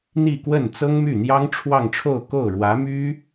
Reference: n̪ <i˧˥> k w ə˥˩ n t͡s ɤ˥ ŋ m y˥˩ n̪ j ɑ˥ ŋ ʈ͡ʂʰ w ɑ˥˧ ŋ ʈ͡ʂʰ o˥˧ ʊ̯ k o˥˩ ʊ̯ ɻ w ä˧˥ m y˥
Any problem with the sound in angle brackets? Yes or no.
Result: yes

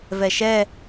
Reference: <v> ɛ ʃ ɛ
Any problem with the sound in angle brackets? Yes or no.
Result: no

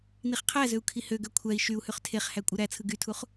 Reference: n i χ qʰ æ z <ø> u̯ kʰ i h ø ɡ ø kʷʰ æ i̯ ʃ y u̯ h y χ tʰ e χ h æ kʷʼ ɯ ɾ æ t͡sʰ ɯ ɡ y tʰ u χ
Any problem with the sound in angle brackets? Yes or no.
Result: no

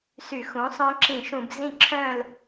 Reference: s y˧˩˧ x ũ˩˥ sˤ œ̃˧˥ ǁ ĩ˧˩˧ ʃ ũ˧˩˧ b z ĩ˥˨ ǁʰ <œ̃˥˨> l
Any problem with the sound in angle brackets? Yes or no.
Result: no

